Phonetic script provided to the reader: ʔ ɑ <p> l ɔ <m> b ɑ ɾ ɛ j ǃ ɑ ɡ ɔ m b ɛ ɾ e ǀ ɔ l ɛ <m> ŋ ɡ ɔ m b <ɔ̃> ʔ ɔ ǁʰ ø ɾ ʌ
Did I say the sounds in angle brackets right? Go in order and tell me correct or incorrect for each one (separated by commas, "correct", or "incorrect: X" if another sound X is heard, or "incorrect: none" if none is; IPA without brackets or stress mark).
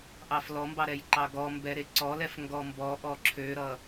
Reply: incorrect: f, correct, incorrect: f, incorrect: ɔ